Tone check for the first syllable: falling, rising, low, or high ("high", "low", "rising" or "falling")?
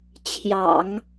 low